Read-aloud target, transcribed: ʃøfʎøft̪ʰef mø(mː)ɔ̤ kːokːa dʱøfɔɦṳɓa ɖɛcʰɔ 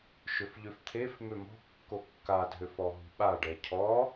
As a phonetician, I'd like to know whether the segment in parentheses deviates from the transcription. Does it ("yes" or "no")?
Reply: yes